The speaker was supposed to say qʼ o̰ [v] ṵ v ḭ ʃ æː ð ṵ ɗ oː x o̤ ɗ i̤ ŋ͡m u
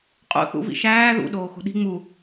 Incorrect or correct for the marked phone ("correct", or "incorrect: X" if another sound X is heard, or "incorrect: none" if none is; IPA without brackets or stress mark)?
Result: incorrect: θ